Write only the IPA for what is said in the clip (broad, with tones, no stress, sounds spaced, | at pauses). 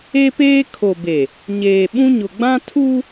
e˦ p eː˦ kʰ o˨ b e˨ | ɲ eː˨ ɓ ũ˦ ɲ ʊ˨ ɡ͡b ã˦ tʰ u˦